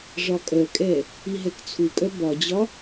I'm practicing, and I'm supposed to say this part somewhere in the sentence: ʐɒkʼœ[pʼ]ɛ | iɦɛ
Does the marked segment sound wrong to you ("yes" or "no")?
yes